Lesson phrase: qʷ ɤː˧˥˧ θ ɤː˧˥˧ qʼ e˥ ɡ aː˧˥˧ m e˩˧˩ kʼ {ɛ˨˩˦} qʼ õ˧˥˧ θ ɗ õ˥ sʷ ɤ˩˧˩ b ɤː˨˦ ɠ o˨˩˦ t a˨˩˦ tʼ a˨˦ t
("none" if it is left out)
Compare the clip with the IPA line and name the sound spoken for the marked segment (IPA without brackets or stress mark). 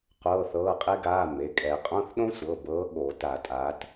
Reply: ɛ˨˩˦